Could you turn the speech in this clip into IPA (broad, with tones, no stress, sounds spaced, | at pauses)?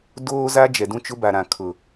d oː˦ z a˦ d͡ʒ ɛ˨ d ũ˦ t͡ʃ ʊ˦ b a˨ ɾ ã˨ kʰ ʊ˨